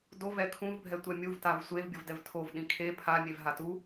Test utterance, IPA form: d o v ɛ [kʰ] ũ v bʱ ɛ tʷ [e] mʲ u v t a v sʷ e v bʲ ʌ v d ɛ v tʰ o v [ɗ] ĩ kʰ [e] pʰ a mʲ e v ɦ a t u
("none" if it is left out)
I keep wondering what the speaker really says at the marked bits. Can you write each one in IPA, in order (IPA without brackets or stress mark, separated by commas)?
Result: kʰ, ɛ, ɗ, e